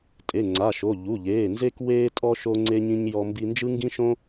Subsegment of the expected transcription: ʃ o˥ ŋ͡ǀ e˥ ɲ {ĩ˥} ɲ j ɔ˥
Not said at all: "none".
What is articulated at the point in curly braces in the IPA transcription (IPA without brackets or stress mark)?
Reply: ĩ˥